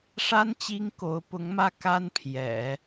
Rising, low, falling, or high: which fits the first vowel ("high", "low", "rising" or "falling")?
high